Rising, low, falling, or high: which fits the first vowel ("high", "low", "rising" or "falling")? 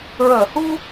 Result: low